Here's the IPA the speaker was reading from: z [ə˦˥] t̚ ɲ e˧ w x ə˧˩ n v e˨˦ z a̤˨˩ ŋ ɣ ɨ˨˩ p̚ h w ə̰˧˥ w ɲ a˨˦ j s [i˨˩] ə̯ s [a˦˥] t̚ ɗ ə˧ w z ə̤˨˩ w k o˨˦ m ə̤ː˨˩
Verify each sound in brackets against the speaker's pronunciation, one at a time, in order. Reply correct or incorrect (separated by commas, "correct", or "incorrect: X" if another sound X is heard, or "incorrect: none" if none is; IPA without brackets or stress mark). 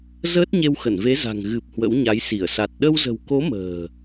incorrect: əː˦˥, incorrect: i˧˩, incorrect: a˨˩